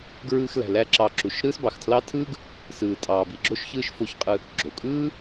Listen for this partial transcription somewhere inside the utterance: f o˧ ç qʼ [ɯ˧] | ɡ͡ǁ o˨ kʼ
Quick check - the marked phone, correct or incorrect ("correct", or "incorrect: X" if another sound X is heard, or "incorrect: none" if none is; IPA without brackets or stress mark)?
correct